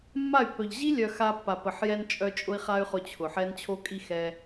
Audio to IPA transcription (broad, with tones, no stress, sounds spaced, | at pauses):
mː a˦˨ y̯ pː œ˨ ʎ ʑ i˦ lʲ œ˨ x a˧ pː a˨ p ə˨ ħ j ɛ˧ n t͡ʃʼ œ˧ t͡ʃʼ ʊ˧ i̯ χ a˦ y̯ χ ʊ˧ t͡ɕʰ ʊ˨ ħ ɛ˦ n t͡ɕʰ o˧ kʼ i˧ x ɛ˧